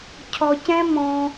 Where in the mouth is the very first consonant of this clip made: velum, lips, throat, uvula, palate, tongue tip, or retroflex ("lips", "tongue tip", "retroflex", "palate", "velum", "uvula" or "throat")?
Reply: palate